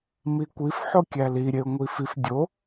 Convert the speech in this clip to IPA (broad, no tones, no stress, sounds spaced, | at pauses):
m i kʷ i f ħ o kʲ æ l i ɾʲ e ʊ̯ ŋʷ i f i f dʲ o